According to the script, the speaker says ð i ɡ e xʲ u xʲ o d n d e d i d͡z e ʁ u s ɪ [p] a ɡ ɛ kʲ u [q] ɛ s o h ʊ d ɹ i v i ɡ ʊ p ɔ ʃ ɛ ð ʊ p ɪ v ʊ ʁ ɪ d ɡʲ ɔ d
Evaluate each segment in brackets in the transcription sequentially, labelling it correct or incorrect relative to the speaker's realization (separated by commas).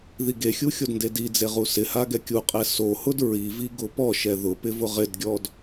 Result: incorrect, incorrect